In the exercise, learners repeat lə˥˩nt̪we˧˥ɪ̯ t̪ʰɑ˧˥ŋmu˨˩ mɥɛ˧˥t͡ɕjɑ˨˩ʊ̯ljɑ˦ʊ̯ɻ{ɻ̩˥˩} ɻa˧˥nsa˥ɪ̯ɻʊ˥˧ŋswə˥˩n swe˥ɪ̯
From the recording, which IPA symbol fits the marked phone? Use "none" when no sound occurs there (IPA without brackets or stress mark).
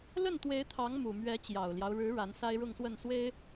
ɻ̩˧˥